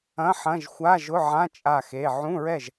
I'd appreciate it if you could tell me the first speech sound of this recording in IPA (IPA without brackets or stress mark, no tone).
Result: ɐ̃